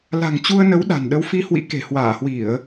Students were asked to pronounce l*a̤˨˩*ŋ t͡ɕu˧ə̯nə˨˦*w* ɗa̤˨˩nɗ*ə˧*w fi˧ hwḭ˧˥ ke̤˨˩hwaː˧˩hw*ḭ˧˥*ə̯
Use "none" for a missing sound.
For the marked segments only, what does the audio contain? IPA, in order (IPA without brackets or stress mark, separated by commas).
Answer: a̤˨˩, w, ə˨˦, i˧˩˨